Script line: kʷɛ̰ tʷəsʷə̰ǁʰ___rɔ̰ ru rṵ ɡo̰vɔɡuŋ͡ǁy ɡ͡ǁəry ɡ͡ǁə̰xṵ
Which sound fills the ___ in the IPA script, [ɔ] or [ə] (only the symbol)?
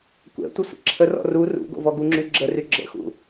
ə